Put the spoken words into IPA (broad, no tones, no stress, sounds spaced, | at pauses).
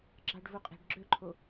ɡ͡ǁ ɑ ɖ v u qʼ e̤ ɖ ɡ͡ǁ ø ǃʰ o